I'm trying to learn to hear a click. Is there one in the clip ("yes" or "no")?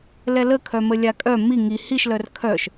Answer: no